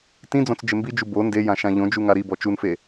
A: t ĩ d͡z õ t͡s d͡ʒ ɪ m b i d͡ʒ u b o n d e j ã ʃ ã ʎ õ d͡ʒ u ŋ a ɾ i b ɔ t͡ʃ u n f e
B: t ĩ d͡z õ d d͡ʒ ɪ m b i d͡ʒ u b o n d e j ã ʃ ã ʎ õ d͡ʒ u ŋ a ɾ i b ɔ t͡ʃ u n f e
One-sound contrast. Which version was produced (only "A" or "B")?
A